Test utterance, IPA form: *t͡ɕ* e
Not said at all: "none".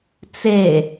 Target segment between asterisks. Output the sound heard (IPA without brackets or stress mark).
t͡s